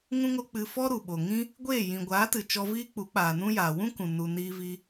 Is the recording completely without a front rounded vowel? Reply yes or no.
yes